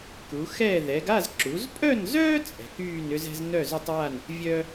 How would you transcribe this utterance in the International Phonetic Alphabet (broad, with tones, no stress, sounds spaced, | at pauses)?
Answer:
k u˩˧ x ɛː˥˧ ð ɛ˩˧ ɡ a˥˧ z ǁ u˩˧ z pʼ œ˥˧ n z œː˥ t͡sʼ ɛ̤˩˧ k yː˥˧ n ʏ˥ z ɛ̤˥ z n œ˥˧ z ʏ˥ tˤ w a˥˧ n | vʲ œː˥